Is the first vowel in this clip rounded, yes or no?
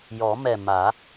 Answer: yes